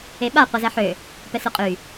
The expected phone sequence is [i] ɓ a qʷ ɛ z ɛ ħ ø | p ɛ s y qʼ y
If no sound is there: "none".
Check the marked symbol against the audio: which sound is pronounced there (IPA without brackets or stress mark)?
e